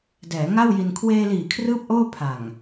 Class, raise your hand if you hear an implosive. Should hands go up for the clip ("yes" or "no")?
no